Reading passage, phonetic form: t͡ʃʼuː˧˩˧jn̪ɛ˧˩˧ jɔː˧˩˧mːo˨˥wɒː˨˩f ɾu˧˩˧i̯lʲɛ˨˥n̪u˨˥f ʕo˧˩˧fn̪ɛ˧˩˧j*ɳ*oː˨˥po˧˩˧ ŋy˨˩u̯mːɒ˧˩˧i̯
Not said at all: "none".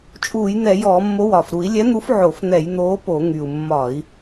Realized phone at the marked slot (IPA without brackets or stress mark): n̪